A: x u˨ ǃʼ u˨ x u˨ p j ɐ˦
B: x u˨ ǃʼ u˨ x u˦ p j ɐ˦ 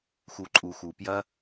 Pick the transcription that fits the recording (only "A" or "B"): A